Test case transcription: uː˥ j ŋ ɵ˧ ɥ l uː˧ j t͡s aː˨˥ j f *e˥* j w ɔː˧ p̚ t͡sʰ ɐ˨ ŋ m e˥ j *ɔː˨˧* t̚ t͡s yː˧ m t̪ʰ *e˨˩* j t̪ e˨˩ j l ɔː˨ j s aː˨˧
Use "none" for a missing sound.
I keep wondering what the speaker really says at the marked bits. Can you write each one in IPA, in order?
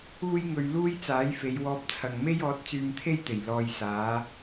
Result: e˨˧, ɔː˨˥, e˥

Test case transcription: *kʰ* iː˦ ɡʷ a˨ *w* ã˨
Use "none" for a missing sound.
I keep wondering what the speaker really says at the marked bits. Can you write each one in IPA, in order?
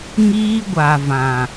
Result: ŋ, v

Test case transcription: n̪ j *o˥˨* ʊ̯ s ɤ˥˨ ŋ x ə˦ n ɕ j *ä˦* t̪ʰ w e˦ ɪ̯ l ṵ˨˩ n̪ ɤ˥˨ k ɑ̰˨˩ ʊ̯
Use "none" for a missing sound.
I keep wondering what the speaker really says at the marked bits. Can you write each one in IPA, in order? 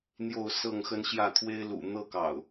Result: o˥˨, ä˥˨

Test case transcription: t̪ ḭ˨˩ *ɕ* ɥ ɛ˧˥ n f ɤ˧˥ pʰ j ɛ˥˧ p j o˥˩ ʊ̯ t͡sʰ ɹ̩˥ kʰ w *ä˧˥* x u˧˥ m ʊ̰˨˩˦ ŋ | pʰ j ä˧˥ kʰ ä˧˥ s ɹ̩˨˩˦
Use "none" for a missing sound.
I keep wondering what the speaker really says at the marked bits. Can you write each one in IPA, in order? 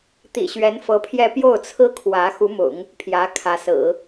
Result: ɕ, ä˧˥

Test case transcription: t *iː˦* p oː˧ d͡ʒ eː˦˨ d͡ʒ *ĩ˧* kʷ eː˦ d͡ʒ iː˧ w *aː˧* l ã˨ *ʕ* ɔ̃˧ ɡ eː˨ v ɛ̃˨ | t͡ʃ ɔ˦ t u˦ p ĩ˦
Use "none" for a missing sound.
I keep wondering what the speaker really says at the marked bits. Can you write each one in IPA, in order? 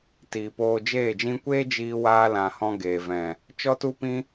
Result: iː˨, ĩ˧, aː˧, h

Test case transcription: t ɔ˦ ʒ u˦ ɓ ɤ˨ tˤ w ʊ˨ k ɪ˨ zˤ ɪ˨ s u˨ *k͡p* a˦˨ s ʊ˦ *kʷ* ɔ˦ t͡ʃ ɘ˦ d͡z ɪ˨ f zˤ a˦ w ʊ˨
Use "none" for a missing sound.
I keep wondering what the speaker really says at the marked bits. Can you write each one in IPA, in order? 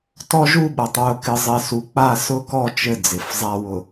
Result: k͡p, k

